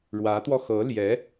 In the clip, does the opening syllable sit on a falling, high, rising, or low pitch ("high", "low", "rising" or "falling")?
rising